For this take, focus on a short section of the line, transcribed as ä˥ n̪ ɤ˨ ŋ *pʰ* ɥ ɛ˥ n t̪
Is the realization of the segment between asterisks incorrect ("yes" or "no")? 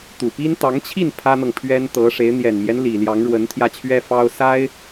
no